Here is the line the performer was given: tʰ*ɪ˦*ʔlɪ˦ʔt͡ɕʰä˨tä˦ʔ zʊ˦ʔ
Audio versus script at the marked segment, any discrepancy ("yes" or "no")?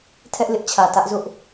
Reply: yes